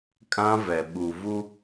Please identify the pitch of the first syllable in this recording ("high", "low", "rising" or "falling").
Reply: high